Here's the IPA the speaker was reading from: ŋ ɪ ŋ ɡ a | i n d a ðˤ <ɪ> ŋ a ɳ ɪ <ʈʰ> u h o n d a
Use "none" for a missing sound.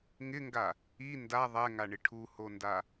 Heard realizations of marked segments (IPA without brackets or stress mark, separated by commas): ɛ, ʈʰ